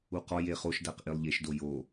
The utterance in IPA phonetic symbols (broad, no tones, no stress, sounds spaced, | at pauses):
u q ɒ j e χ o ʃ d æ q ʔ i lˠ ʎ e ʃ d o j o